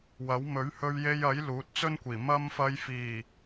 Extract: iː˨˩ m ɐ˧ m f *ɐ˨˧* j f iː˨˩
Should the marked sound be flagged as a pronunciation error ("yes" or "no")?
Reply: no